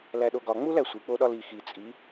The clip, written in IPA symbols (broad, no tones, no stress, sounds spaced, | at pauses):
l æ ɗ o ɡ ɒ ŋ͡m u l æ sʷ i k͡p o ɗ ɒ l i x i t͡sʼ i